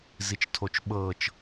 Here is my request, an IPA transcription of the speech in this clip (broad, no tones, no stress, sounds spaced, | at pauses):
z i t͡ʃ tʰ o t͡ʃ ɓ ɤ t͡ʃ